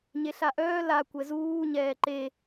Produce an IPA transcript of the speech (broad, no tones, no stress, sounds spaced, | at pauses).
ɲ e ɬ a ʔ œː l a kʷ ɛ z uː ɲ ɛː ǃ e